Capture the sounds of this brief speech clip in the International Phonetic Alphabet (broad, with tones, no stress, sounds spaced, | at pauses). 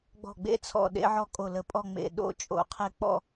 ɡ͡b ɔ̤˧˩ ɡ͡b ḛ˥˧ t͡sʰ ɔ̰˧˩ ɗ ḛ˥ ʕ ɔ˥ kʼ o˧˩ l ə˧ pʼ ɔ˥˧ ŋ͡m ḛ˧˩ ɗ o̰˥˧ t͡ʃʼ o̰˧˩ qʰ e˥ k͡p ɔ̰˥˧